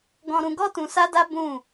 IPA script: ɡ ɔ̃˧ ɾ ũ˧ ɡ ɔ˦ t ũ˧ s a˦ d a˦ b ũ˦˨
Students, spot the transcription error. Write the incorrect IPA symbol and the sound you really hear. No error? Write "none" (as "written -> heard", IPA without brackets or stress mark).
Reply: none